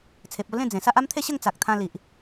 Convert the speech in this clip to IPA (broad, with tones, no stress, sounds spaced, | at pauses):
t͡sʰ e˨ p̚ o˥˧ l ẽ˥˧ d͡z ẽ˨˩ s a˦ ʔ a˦ m t̪ʰ e˥˧ ɕ ə˥˧ ŋ t͡s a˨ k̚ t̪ʰ ã˧ l i˨ ʔ